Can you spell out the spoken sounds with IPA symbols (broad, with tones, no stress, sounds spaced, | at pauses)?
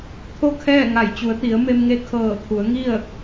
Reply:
t̪ʰ o˥˨ kʰ ɛː˥˨ ŋ a˧˩ j t͡ɕ u˩˧ ə̯ t̪ i˩˧ ə̯ m e˧ m ŋ e˧ kʰ ɤː˧˩ t̪ʰ u˩˧ ə̯ ŋ i˥˨ ə̯